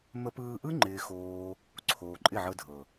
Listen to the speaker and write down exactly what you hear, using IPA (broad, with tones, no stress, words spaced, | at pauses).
mə˧pɯː˧ʔɯ˦ ŋ͡ǃɪː˦xoː˦ | ǀʰoː˨ǃʼɪ˦˨ʕɤ˧dʱɤ˨